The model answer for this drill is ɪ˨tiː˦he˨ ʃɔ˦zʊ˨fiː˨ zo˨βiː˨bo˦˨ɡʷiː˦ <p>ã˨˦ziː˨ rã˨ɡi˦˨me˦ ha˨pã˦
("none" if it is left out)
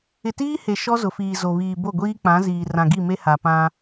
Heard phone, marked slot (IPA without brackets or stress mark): k͡p